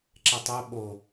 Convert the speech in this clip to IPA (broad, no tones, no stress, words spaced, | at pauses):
ǁɛtˤo ɓo